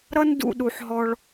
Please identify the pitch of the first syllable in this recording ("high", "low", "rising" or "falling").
high